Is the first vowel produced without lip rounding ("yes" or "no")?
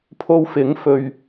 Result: no